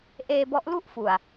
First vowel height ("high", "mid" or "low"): mid